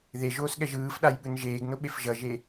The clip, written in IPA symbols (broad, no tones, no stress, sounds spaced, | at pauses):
ð e ʒ oː s ɠ ɛ ʒ ɯː f ɗ a j ɓ ɯ n ʒ eː ɡ n o ɓ e f ʒ ʌ ʒ e